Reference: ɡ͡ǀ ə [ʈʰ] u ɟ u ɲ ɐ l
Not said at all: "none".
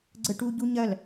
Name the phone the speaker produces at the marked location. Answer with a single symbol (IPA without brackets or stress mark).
ʈ